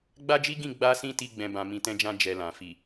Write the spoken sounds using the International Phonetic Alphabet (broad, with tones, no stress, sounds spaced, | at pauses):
ɡ͡b a˦ d͡ʒ i˦ ɡ ĩ˦˨ ɡ͡b a˧ s ĩ˧ t i˦ ɡ͡b ɛ̃˧ b ã˧ m ĩ˧ t ɛ̃˦ d͡ʒ ã˦ d͡ʒ ɛ˧ l ã˨ f i˨